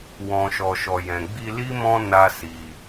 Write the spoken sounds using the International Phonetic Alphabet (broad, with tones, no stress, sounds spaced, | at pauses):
w ɔ̃˨ ʃ ɔ˨ ʃ ɔ˨ j ɛ̃˨ ɡ͡b i˧ l i˦ m ɔ̃˦ n a˦ s i˧